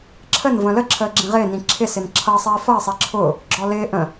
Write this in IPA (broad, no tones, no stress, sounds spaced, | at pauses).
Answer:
ǁʰ ə n v ə̃ l ə ǁʰ əː ɡ͡ǁ ĩ ʁ ɪː n ĩ ǁʰ ɪ s ɪ n ǁʰ ʌ sˤ iː f ʌ ɪ̯ sˤ i ǁʰ ʊː | ɡ͡ǁ ɔ l ɪː ʔ ə̃